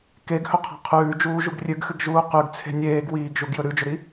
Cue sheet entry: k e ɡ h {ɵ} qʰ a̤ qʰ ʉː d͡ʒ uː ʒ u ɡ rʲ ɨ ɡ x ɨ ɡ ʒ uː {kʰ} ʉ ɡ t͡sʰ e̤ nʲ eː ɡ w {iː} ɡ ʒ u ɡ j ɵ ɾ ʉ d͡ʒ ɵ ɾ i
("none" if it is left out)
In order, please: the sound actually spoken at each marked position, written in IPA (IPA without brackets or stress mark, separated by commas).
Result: ɵ, q, iː